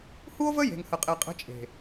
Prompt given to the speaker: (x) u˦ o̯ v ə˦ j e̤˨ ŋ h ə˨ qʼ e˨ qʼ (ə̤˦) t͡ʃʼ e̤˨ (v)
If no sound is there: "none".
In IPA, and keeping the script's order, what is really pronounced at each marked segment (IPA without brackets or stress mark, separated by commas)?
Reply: h, ə̤˦, none